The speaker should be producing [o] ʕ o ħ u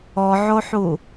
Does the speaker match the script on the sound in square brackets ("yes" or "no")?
no